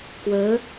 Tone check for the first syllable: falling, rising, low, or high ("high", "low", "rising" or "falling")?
rising